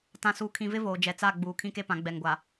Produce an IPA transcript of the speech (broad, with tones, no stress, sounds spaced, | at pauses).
t ã˨ s uː˨ kʰ ĩ˨ v ɪ˦ v oː˨ d͡ʒ ɛ˨ t͡s a˦˨ ɡ͡b uː˨ kʰ ĩ˦ k e˦ p ã˨˦ ɡ͡b ɛ˨ ŋ ɡʷ a˨